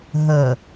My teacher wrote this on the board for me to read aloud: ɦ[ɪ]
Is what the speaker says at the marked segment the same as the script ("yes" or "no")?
no